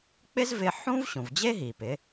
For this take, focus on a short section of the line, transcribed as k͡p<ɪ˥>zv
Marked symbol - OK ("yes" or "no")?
yes